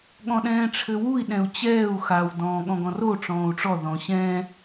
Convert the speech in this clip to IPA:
ɠ ɔ̃ ɗ ɛ̃ː ʈ͡ʂʰ ɘ w u i̯ ɗ ɛ̃ u̯ t͡ɕ ɛː u̯ x a w d ɔ̃ː ɠ ɔ̃ ɡ ɔ̃ r o ʈ͡ʂ ɔ̃ː u̯ ʈ͡ʂ ɔ ð ɔ̃ ɕ ɛ̃ː

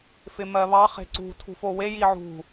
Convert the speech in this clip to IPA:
f ɪ m ɜ β ɑ χ e̤ ǀ ṳ tʰ ṳ f o w e j i ʕ ṳ

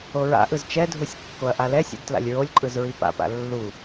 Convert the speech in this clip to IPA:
o ɹ a̰ ʔ ɯ z t͡ʃ ɛ dʱ u sʲ kː o ɐ̯ ʔ a l ɛ sʲ ṵ d t l a̰ lʲ ɹ o lʲ ǃʼ ɯ z ɹ i p a̰ p a̰ lː u

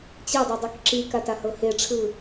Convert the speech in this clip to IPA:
t͡ɕ e dˤ ɯ dˤ u k ǁ i k a t a h ɤ h e ʈ͡ʂʰ ɯ

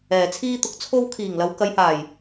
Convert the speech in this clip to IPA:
ɛː˨ t͡sʰ iː˥ t̪ ʊ˧ k̚ t͡sʰ o˥ w kʰ iː˨˩ ŋ l ɐ˨˧ w k ɐ˨˧ j h aː˨˩ j

